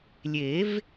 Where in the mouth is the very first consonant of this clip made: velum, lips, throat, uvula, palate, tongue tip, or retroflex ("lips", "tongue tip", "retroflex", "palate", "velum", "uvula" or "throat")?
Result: tongue tip